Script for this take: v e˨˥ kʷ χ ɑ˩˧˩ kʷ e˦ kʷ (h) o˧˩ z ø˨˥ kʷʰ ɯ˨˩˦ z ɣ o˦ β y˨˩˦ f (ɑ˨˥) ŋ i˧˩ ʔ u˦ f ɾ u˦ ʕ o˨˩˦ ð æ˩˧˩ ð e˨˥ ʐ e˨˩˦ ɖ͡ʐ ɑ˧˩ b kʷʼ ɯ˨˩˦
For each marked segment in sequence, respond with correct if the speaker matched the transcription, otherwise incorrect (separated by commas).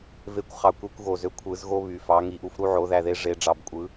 incorrect, correct